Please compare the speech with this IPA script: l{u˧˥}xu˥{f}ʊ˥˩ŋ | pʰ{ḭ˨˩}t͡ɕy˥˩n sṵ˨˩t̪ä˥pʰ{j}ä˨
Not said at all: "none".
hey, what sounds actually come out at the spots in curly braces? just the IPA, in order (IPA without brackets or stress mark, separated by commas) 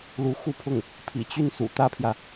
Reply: u˧˥, pʰ, ḭ˨˩, j